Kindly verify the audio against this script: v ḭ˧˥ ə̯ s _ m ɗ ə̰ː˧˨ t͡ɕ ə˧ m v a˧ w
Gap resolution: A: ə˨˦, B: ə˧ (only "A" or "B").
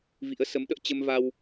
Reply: A